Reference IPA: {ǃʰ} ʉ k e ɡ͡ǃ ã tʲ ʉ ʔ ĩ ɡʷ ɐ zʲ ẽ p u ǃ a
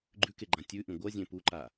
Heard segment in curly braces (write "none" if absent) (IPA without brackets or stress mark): ɡ͡ǃ